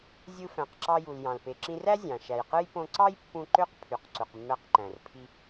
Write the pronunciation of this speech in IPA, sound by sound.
zʲɯ˧fæ̃˩qǁɑ˧ju˩l jɑ̃˩lpe˩ǁĩ˧ræ˥ zʲɑ̃˩ ʃæ˩jqɯ˥j põ˧ǀɑ˥jpːũ˧ ǃø˥qpʰy˩q ǀu˩qmːæ˧qǃæ̃˩r pʰi˧

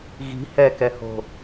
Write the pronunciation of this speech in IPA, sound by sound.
ɣi̤ hɛkɛho̤

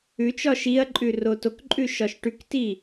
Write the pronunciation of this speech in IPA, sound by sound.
ʉt͡ʃɒ ʃiɐ̯ǃʼʉ rotokǃʼʉ ʃɒʃʈʉkti

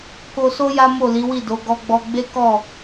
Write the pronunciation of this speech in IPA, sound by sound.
ko˧so˦ ja˦mo˦˨ li˨˦wi˦˨do˨˦ ɡɔ˧ɡ͡bɔ˧ ɡ͡be˦kɔ˦˨

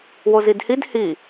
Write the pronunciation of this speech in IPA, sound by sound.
wozidhid hi

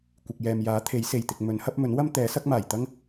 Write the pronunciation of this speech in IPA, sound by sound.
kʷɪ˨k̚jɛː˨mjaː˨˥t̪ʰe˨˥j se˨˩jt̪ɪ˨k̚ mɵ˨˥nhɐ˨˥p̚mɵ˨˥nwɐ˥m t̪ɛː˨˥sɐ˥k̚maː˨˩jt̪ɐ˥ŋ

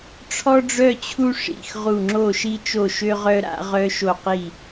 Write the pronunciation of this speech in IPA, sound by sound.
ʈ͡ʂʰɔ˥ɖ͡ʐœ˥˧ t͡ɕʰu˥ ʂḭ˥˧xʁu˥˧ ŋ͡ǁo˥˧ʃi˥t͡ʃo˥˧ʃø˥ ʁœ˥ɾa̰˥ ʁœ˥ʃo˥˧qi˥˧

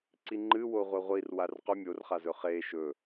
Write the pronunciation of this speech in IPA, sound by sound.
ǀiŋ͡ǃɨwo ʁʷeʁʷir warqɵ mʲorχazɵ χe ʃɵ

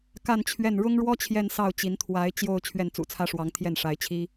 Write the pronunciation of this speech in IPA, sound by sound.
ka˥˧nt͡ɕʰɥɛ˥˩n ɻʊ˥ŋɻwɔ˥ t͡ɕʰjɛ˥˧nsɑ˥˩ʊ̯t͡ɕi˧˥n t̪ʰwa˧˥ɪ̯ t͡ɕjo˥˧ʊ̯ t͡ɕʰɥɛ˥˩nt͡sṵ˨˩t͡sʰä˥ʂwɑ˧˥ŋ t̪ʰjɛ˥˩nʂa˧˥ɪ̯t͡ɕʰi˥

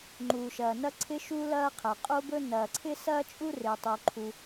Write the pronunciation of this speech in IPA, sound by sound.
ŋ͡ǃuː˩ʃɐː˩nɐ˥ ǀʰɪ˥ʃu˥lɐː˥qʰɐ˩ qʼo˥bɵ˥ nɐː˩ǀʰɪ˥ sɐː˥t͡ʃʼu˥rɪː˩ tˤo˩ ǃʰu˩

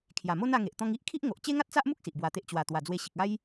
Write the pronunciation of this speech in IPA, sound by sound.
kʰja˨˩mo˦na˧ŋe˨ʔ t̪ɔ̃˧ŋi˦ʔkʰi˦ʔ ŋo˨ʔ t͡ɕe˦ŋa˦t̚t͡sa˦ʔmu˦k̚ si˨ʔbwa˧t̪e˦ʔ t͡ɕwa˨˩ t̪wa˨˩d͡zwe˧ɕi˨k̚ a˦j

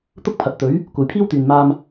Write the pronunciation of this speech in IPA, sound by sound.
t̪ʊ˥k̚pʰɐ˨t̚t̪ɵ˨˥ɥ | kʷɐ˨jpʰiː˥wt̪yː˨nmaː˧m

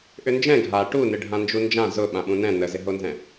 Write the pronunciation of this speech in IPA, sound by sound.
ʔʏnd͡ʒɛ̃ ɡʱa ʈunɪɖʱã nd͡ʒund͡ʒã zʊ ɓãɓũnɛ̃ nəzɪɦonzɛ̃

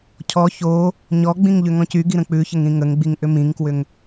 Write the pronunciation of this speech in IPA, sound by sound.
cʰɔ ço | ɲɔɡ͡bĩŋ ʎʏŋɔ̃cyɡi ɾə̃k͡pʉçəŋ ɾĩŋəŋɡ͡biŋ ʔʏmĩŋkwʏŋ

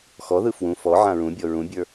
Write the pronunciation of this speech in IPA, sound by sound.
xɔðɯ fwũ fɔ ʕãɹũbʲɔ ɹũbʲə˞

